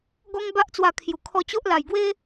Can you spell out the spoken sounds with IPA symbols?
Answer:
ɡɔ˦ŋba˦ʔt͡swa˧kʰju˨˩ kʰɔ˧t͡ɕo˦ʔ la˨˩jɡwe˦

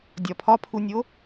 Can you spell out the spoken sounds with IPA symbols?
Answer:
dʲɒ pʰɒpʰunʲo

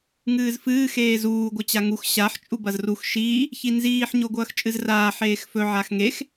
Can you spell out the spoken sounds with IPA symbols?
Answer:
ŋɨːzfɨː xeːzuː ɡʷɐt͡ɕaŋux ɕaħ t͡ʃʼubɐzrux ʃiː | çinziːħ ɲoɡʷɐːxt͡ʃʼɨzraː ħeːxfɵ ʕaxŋex

